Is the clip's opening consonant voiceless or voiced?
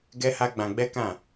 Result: voiced